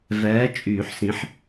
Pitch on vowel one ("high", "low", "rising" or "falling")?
rising